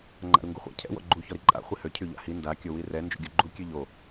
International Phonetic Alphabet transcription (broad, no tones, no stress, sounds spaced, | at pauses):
ŋ͡ǃ a̰ ɾ u ŋ ɡ u χʷ a̰ cʰ ɛ̰ w ɔ̰ ɡ͡ǃ u ç ɔ ɾ i ǃʼ a̰ χʷ i h ø cʰ y ʎ a̰ h i n d a kʲ o w i r ɛ n d͡ʒ ṵ ɡʲ o ɡ͡ǃ u kʲ ø ʎ o